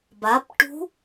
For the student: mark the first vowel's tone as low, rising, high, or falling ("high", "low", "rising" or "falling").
rising